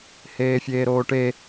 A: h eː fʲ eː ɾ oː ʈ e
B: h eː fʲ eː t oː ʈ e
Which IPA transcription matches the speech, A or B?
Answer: A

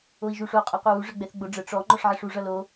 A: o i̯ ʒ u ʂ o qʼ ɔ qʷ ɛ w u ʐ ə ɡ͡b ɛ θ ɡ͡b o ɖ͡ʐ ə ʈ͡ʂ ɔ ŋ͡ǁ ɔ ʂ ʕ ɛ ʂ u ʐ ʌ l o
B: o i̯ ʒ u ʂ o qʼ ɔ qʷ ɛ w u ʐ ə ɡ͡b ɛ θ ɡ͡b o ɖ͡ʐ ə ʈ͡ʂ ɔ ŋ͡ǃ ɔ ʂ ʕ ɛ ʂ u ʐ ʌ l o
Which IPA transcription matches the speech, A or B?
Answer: B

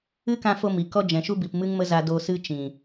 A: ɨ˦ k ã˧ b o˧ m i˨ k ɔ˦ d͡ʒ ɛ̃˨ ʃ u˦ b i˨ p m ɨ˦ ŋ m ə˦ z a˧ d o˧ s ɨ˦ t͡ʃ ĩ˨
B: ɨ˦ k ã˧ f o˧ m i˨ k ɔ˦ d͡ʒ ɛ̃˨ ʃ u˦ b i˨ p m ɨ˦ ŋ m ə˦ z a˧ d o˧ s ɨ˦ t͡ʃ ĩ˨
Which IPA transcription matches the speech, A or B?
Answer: B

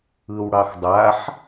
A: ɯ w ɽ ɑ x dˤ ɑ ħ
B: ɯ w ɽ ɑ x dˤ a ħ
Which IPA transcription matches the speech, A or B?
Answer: B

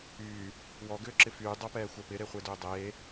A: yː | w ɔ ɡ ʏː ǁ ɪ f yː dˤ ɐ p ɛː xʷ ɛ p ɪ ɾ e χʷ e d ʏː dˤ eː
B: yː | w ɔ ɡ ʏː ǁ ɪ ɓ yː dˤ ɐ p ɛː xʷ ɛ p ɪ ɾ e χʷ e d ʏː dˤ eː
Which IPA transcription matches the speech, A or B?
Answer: A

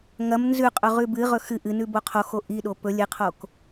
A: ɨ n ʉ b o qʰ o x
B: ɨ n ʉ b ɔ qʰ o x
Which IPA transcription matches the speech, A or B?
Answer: A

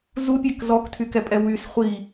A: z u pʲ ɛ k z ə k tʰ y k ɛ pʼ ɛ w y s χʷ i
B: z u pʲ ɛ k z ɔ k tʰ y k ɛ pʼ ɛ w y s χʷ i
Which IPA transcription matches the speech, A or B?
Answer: B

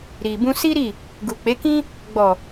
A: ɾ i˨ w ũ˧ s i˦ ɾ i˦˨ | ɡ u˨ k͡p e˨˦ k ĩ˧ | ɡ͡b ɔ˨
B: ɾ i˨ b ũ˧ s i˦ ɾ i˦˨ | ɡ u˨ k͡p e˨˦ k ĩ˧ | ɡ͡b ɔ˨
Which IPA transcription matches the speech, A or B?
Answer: B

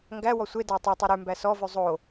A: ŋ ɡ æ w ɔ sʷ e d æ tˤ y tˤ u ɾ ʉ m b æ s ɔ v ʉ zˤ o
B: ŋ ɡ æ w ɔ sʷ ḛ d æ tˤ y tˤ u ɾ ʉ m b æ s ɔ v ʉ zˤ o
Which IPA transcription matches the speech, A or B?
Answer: A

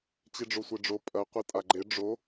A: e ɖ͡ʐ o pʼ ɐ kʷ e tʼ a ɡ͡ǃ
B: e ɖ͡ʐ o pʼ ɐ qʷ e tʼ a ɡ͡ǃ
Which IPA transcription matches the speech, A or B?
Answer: B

